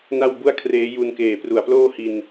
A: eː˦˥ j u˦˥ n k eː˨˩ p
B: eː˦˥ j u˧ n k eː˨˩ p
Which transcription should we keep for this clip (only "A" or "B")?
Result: B